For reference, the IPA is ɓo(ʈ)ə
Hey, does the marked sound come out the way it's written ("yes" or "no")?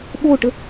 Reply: yes